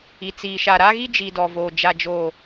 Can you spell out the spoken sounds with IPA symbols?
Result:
i˨ t͡s iː˨ ʃ a˨ ɾ a˦ ɣ i˦ d͡ʒ i˨ d ɔ˨ v oː˨ d͡ʒ a˨ d͡ʒ oː˨

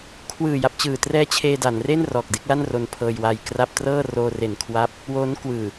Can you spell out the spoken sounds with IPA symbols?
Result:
kʰ w ɯː˨˩ j a˨˩ p̚ t͡ɕ ɯː˨˩ t r ɛː˦˥ t͡ɕʰ eː˧ d a˩˦ n r e˥˩ n r ɔː˨˩ k̚ d e˦˥ k̚ l a˥˩ n r o˧ n pʰ ɤː˧ j w a˧ j k r a˥˩ p̚ t r ɤː˥˩ r oː˧ r e˨˩ n kʰ w a˦˥ p̚ | w oː˦˥ n k w ɯː˨˩

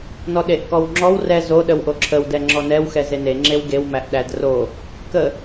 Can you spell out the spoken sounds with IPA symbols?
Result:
n ɔ ɗ e ʔ k ɔ w ŋ͡ǁ ɔ w r ɛ z o ɗ ə w ʔ o ǁʰ ə w d ɛ ŋ͡ǁ ɔ n ɛ w x ɛ z e n e ŋ͡ǁ e w ɡ e w m æ ʔ ɗ æ d r o | k ə

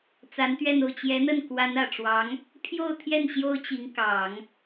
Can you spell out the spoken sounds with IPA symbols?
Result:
t͡s a˧˥ n t̪ ɥ ɛ˥˧ n o˥˩ ʊ̯ t͡ɕ j ɛ˧˥ n̪ ə˥˩ n k w a˧˥ n ä˨˩ ʈ͡ʂ w ɑ˧˥ ŋ | pʰ j o˥˧ ʊ̯ t̪ʰ j ɛ˥˩ n ɕ j o˥ ʊ̯ t͡ɕ i˧˥ ŋ k ɑ˨˩˦ ŋ

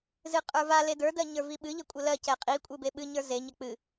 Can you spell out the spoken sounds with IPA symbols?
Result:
z ɨ qʼ ə˞ v a l e d ə˞ d ɜ ɲ ə˞ v i ɓ ɨ ʎ ɘ kʷʼ ɘ l ɜ c ɛ qʼ i kʷʼ ɨ b e ɓ ɨ ɲ ə˞ z e ɲ ɛ k͡p ɨ

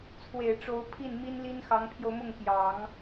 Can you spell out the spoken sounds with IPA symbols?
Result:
t͡sʰ w e˨˩ ɪ̯ ʈ͡ʂ o˧˥ ʊ̯ pʰ i˥˩ n m i˥ n l i˥ n x ɑ˧˥ ŋ pʰ j o˧ ʊ̯ m ʊ˥˩ ŋ p j ɑ˨˩˦ ŋ

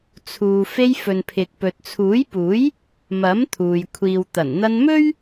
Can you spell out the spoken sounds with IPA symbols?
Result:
t͡sʰ uː˨ f e˧ j f ɵ˨ n pʰ ɪ˨ k̚ p ɵ˨ t̚ t͡sʰ uː˨˥ j p uː˨˥ j | m ɐ˨˥ m t̪ʰ uː˨ j kʷʰ iː˨ w t̪ ɐ˨˩ n n̪ ɐ˧ n m ɵ˥ ɥ

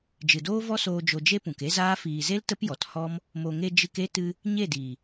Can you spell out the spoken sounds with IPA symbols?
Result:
d͡ʒ ɨ˨ d oː˦ v ɔ˦ s oː˧ d͡ʒ o˧ d͡ʒ e˦ p ũ˨ k e˦ z aː˦ f iː˨ z e˦ l t ə˦ p j ɔ˨ t h ɔ˦ m | m o˨ ŋ e˧ d͡ʒ ɨ˧ k e˦ t ɨ˧ | ɲ e˦˨ d iː˨

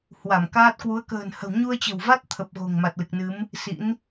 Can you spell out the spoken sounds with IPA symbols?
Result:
h w a˧˩ m k aː˦˥ t̚ k w u˨˦ ə̯ k ə̤ː˨˩ n h ə̤˨˩ w ɲ u˧ ə̯ t͡ɕ ə̤˨˩ w v a˦˥ t̚ t̪ʰ ə˨˩ p̚ ɣ o̤˨˩ ŋ m a˨˩ t̚ l ɨ˨˩ k̚ n ɨ˨˦ m | s ḭ˧˥ n

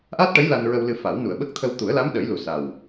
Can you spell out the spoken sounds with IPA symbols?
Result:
ʔ a˦˥ t̚ ʈ ə˧˥ j l a˧ n ɹ ə˧ w l ɨ˧ f a˨˩˦ w n u˨˩˨ ə̯ ɓ ə˦˥ k̚ t̪ʰ ə˧ w t̪ u˨˩˦ ə̯ l a˧˥ m ɗ ə˨˩˦ j l u˨˩ s a˨˩ w

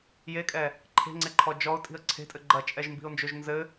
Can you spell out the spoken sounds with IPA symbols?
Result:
j e kʼ ɛ | ǃʰ e̤ ŋ͡ǀ e ǃʰ ɔ d͡ʒ ɔ ʊ̯ tʼ i̤ ə̯ ǀʰ e̤ tʼ ɘ ɡ͡ǃ ɐ t͡ʃʼ ɛ ʒ m b i̤ ʊ̯ n d͡ʒ o ʒ n z ɘ

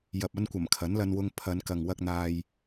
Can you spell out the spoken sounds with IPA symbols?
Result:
j ɐ˨ p̚ ɐ˧ n kʷ ɐ˨˩ m kʰ ɐ˨˥ n l ɐ˧ n w ʊ˧ ŋ pʰ ɐ˨˧ n k ɐ˨ ŋ w ɐ˧ k̚ n̪ aː˧ j

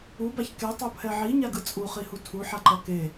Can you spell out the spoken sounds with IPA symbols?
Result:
u b a ç k e tˤ o pʰ ɛ ʕ i ɲ a ɡ ɯ t͡sʼ u χ i h u tʰ u ħ a ǃ ʌ k e

